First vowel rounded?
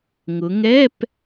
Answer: yes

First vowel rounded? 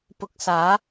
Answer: yes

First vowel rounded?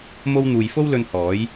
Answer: yes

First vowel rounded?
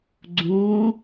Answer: yes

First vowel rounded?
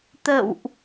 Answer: no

